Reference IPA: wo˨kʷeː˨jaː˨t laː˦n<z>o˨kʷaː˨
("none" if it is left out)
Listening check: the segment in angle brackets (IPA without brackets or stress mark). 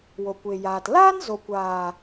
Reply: z